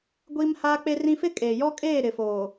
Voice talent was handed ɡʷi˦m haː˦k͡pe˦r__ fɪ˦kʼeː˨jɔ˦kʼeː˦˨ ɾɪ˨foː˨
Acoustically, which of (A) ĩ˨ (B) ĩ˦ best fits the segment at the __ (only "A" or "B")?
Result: B